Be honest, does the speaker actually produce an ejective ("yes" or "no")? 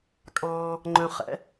yes